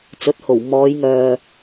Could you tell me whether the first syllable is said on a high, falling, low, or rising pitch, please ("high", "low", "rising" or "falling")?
rising